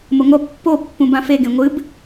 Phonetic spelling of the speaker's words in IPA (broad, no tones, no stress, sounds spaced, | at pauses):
m ə ŋʷ ʌ pː o pː ũ b ã f e ɡ ẽ ŋʷ ɨ b